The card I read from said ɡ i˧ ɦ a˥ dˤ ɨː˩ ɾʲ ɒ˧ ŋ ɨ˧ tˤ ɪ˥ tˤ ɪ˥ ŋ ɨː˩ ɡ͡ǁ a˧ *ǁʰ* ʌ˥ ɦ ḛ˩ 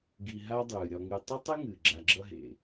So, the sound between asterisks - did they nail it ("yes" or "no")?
no